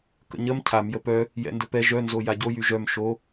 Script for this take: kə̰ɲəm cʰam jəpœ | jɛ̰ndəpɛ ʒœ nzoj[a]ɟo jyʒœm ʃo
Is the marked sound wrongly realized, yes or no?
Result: no